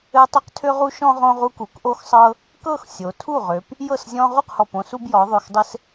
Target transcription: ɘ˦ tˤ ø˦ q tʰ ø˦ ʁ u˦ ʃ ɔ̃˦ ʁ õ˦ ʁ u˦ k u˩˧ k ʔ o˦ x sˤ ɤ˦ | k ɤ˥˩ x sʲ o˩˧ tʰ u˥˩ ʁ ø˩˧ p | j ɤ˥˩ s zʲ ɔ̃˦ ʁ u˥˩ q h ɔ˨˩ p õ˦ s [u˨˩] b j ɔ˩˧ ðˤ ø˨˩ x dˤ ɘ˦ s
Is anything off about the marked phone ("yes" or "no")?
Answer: yes